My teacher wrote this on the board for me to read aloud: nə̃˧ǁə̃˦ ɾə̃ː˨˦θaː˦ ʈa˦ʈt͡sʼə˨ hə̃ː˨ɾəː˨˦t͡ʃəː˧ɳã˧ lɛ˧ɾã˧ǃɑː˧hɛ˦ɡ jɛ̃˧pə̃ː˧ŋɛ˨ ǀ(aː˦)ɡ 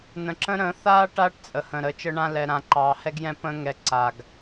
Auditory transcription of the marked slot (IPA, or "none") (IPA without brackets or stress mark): aː˨